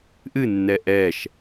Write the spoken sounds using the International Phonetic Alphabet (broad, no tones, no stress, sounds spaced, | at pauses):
ʔ ɨ nː ɛ ʔ ɛ ʃ